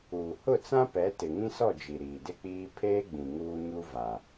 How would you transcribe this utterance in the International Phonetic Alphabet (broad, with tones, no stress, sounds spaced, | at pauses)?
uː˨ h ʊ˦˨ t͡s ã˦ p ɛ˨˦ t ɪ˨ ŋ ĩ˦ s ɔ˦˨ d͡ʒ i˨ ɾ iː˨ d ɪ˦ k͡p iː˦ pʰ eː˦ ɡ͡b ĩ˨ ŋ uː˦ ɲ u˦ v a˨